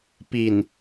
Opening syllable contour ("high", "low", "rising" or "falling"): low